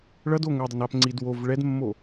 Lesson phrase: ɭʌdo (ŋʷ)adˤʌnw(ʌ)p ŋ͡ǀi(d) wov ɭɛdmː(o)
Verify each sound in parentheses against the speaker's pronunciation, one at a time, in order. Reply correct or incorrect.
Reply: correct, incorrect: a, correct, correct

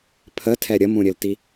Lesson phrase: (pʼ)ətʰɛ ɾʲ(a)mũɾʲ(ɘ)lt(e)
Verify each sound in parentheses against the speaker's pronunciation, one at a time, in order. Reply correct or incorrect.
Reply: incorrect: pʰ, incorrect: ə, correct, incorrect: i

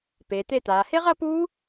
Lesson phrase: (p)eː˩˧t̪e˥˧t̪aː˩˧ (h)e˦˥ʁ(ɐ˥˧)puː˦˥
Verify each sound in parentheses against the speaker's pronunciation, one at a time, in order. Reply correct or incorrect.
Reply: correct, correct, correct

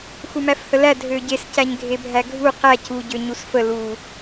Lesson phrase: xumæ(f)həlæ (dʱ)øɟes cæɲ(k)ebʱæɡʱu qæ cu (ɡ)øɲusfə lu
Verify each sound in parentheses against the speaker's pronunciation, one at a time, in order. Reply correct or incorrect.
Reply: correct, correct, incorrect: ɡʱ, incorrect: ɟ

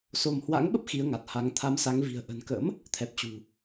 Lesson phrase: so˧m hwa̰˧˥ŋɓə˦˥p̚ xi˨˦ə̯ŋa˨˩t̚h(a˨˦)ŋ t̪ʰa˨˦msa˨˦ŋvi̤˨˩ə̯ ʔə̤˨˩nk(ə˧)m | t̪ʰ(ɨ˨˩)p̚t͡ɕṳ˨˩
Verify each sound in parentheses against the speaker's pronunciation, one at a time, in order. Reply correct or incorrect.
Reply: correct, incorrect: ə̰˧˥, incorrect: ɛ˨˩

